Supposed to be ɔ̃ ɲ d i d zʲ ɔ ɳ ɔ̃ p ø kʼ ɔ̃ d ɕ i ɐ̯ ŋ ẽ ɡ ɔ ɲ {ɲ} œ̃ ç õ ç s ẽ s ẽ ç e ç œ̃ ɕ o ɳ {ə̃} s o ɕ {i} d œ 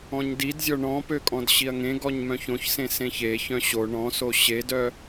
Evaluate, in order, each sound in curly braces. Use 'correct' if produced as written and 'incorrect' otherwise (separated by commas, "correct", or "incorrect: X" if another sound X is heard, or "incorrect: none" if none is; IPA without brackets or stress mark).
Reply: incorrect: m, incorrect: ɔ̃, incorrect: e